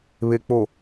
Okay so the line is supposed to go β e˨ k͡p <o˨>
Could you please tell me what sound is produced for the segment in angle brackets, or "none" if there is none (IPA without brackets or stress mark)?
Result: o˨